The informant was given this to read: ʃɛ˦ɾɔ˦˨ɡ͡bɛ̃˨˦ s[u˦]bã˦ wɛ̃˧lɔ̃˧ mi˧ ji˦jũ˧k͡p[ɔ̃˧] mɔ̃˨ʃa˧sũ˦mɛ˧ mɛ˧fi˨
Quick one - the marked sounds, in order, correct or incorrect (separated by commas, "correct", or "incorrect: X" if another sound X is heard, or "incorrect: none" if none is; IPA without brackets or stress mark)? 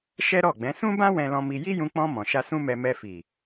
incorrect: ũ˦, correct